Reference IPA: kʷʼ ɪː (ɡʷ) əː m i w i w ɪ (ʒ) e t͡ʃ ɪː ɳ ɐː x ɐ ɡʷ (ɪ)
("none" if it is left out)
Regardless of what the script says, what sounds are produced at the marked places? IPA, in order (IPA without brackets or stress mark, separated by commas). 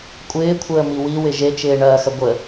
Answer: kʷʰ, ʒ, ə